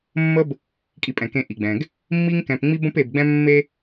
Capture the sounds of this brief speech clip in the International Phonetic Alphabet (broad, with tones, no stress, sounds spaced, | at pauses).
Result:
mː ə˦ b | kʼ i˨ pʼ ɛ̃˩ k ẽ˨ ʔ i˩ ɡ͡b ɛ̃˩ ɡ | mː i˦ ŋ k ɛ̃˨ p ŋ͡m i˦ b ə̃˦ p e˨ b ɡ͡b ɛ̃˦ mː e˥